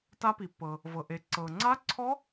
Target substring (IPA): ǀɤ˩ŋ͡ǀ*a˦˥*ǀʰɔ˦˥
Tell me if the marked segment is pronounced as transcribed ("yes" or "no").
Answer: yes